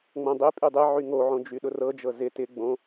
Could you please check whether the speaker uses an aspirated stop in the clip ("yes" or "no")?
no